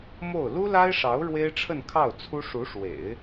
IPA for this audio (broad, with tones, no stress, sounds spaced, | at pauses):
m o˥˩ ʊ̯ l u˥ l a˥ ɪ̯ ʂ ɑ˧˥ ʊ̯ ɻ w e˥ ɪ̯ ʈ͡ʂʰ ə˥˧ n kʰ ɑ˥˩ ʊ̯ t͡sʰ u˥ ʂ u˧˥ ʂ w ḛ˨˩˦ ɪ̯